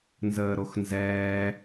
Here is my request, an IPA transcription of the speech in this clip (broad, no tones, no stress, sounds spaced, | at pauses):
n z əː ɾ o x n z ɛː